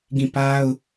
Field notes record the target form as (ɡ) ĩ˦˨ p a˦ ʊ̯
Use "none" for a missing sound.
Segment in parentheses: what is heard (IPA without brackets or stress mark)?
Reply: ɡ